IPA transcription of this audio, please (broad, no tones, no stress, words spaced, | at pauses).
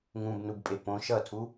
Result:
ŋũbnubpʼe põ ʃʌtʰu